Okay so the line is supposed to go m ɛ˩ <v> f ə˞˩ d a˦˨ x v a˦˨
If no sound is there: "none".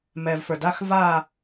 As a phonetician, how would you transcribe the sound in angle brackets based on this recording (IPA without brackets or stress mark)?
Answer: v